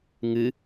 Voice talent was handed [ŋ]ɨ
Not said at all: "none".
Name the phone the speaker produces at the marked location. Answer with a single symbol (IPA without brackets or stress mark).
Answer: ŋ